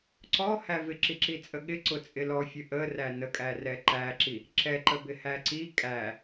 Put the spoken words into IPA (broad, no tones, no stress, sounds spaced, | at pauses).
ǀ ɔ h æ v ɪ ǁ i ǁ i t͡sʼ ə ɠ ɪ ǀ ʊ t͡sʼ ɪ l ɔ fʲ ə ʔ ə r æ n ə kʼ æ r ɛ ǃ æ ǁ i | ǁ ɛ ǃ ə b ɪ h æ ǀ i kʼ æ